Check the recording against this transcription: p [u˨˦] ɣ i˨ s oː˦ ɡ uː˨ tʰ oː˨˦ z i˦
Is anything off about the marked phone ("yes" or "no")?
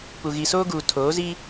yes